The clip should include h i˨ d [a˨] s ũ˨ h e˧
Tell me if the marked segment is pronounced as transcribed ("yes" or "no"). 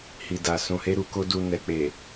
yes